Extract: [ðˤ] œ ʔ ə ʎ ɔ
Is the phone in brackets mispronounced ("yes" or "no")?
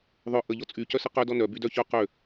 no